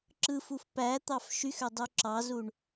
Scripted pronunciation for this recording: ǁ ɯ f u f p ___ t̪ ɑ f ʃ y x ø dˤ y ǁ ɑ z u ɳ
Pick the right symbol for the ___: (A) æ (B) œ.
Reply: A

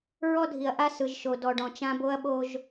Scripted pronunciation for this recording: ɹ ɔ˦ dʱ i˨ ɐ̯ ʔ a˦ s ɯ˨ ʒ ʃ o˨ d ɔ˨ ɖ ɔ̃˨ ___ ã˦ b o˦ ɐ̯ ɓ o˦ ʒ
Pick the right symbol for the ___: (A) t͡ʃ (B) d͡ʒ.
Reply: A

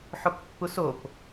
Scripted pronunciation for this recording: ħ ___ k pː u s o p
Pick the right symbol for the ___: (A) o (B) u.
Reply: A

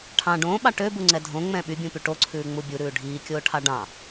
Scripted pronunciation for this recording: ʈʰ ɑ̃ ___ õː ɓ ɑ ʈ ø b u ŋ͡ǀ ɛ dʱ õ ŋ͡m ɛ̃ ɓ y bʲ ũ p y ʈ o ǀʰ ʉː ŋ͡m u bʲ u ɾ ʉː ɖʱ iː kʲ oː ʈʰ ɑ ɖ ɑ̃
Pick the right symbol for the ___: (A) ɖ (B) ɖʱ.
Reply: A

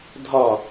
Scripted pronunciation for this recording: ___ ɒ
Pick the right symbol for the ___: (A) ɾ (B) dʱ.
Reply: B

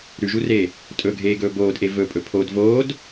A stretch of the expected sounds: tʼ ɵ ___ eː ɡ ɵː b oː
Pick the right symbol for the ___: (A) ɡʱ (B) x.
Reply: A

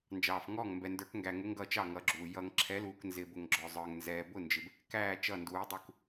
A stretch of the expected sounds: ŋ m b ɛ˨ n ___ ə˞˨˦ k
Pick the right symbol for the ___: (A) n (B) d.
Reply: B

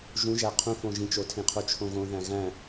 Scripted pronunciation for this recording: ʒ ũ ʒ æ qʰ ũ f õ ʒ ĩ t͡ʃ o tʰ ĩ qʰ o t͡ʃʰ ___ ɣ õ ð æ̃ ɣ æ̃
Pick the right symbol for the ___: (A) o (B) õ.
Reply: B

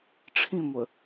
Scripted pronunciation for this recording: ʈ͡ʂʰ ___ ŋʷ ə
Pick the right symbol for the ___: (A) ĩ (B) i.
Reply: A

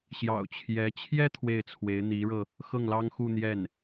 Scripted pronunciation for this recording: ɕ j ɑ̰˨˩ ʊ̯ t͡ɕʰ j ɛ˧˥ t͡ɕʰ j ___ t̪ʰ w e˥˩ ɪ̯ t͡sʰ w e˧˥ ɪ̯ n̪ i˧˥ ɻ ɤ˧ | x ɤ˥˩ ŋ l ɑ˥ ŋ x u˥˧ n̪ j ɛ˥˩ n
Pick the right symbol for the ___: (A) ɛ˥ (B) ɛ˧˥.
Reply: A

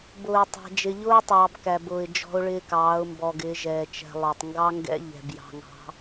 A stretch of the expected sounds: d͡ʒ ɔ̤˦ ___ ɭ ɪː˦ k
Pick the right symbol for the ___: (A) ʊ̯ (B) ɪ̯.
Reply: A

